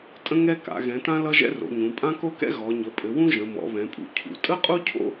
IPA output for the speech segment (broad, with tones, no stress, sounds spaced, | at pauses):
tʼ ə̃˥ ŋ ɛ˥ k a̰˩˧ ɣ ɛ̃˩˧ t ã˥ l ʌ˥ ʒ ɛ̰˥ r o̰˩˧ ɲ ũ˩˧ pʼ ã˥ k o˥ k ɛ̰˥ ɣ ɔ˩˧ ɲ ə˩˧ pʼ ɘ˩˧ w ũ˥ ʒ ə̃˩˧ m ɔ̰˩˧ β ɛ̃˩˧ pʼ ṵ˩˧ cʰ ṵ˩˧ tʼ ə˥ qʼ u˥ cʰ o̰˥